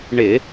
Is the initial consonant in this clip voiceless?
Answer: no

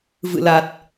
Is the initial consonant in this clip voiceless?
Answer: no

